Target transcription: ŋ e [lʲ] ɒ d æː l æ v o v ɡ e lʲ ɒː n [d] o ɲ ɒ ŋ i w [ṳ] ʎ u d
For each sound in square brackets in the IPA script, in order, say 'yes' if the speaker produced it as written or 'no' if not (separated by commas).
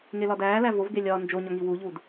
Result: no, no, no